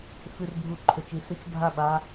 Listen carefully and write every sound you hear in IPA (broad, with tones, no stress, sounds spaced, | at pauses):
f ʉ˨ r bʱ u˨ ǃʰ ɵ˨ t͡ʃ i˨ s ɨ˦ t͡ʃ bʱ a˦˨ ɓ a˦